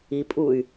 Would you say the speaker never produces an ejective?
no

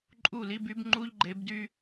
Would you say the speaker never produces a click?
no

